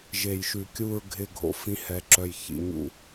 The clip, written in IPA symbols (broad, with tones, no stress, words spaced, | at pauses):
ʒe˨jʃʉ˨kʲu˦˨ɹ ɡʱɪ˦˨ ɡʱo̰˦fĩ˦hɛ˨ ǁœ˨j çḭ˨ ɲṵ˦